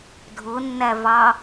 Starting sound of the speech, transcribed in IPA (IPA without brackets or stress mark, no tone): dʱ